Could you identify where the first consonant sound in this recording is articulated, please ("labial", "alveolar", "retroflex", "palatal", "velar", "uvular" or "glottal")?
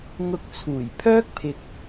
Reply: velar